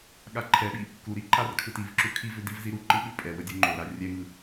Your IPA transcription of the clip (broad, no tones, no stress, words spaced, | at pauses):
ɠaǃʰɛɓi | kuɾi ǃarkʰɯtivǁu kʰivʏ divziɾuǃɯ ɓʉpʼɛwə dʲoŋ͡ǃoɾa rʲɛŋɯ